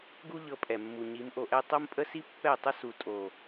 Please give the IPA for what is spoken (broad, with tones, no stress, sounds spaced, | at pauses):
ɡ u˦ ʎ ɤ˧ pʼ ɛ˨ mː u˨ ɲ i˨˦ m ʔ o˧ ʔ ɛ˦ tˤ o˦ m pʼ ə˦ s i˦ pː ɛ˦˨ tˤ ə˦ s u˨ tʼ o˨